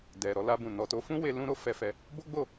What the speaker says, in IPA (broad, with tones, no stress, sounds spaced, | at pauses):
d ɛ˨ ɾ ɔ˧ l a˧ b ũ˨ n ɔ˨ t o˧ f ũ˦ w e˧ l ũ˦ ɾ o˦ f ɛ˧ f ɛ˧ | b o˦ ɡ͡b o˦˨